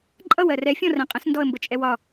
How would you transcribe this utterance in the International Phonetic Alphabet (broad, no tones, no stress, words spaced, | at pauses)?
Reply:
ǃʼʌw ɜrɛ fʲɔ̃rɛ̃qʼə̃s ndɔə̯mbət͡ʃʼɛwɒ